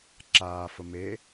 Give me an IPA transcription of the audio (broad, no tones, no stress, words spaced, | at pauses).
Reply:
ǁaːfə me